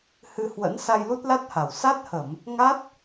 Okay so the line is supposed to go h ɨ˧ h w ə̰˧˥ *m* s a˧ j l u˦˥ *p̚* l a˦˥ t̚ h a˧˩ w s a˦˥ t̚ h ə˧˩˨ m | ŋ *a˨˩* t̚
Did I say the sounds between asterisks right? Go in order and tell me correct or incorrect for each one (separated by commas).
incorrect, incorrect, incorrect